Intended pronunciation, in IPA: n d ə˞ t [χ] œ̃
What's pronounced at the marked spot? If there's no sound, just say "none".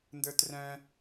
r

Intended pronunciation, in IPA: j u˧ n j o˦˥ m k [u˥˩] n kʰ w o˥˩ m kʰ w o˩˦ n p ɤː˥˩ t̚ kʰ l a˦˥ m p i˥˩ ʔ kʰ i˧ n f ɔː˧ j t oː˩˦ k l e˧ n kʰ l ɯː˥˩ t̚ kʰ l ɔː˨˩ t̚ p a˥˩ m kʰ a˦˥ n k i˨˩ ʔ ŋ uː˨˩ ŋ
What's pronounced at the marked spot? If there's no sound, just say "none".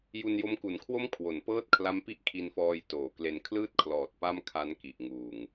u˨˩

